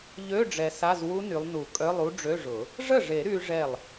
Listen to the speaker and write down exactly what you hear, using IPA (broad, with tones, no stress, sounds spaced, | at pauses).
ʎ ø˧˥˧ ɖ͡ʐ ɛ˨ s a˧˥˧ z w u˦˥ n y˨˦ lˠ n u˨˩˦ kʼ œ˧˥˧ lˠ u˦˥ ɖ͡ʐ ø˧˥˧ ʐ ʊ˨˩˦ | ʐ ə˥˩ ʐ e˨˩˦ ɾ y˦˥ ʐ ɛ˥˩ lˠ